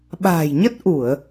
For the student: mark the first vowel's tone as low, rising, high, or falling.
low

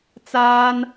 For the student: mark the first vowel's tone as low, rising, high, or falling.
high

